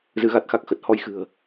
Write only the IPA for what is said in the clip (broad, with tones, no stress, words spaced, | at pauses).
zɨ˨˦ɣa˦˥t̚xa˦˥k̚ xə˨˩t̚ hɔ˧jxɨ̤˨˩ə̯